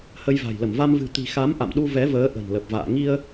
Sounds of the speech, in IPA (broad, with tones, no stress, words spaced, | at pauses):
hə˧jva̤˨˩jlə˧˩m va˧mvɨ̤˨˩ t̪i̤˨˩xa˨˦m ʔa̰˧˨mɗu˧ vɛ˨˦vəː˨˦ ʔə̤˨˩nlə˨˩p̚va̰ː˧˨ ŋi˧ə̯